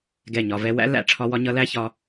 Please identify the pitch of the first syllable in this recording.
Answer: falling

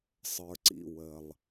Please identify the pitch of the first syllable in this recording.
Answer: low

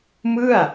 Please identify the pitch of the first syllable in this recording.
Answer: falling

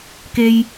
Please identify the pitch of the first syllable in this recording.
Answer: low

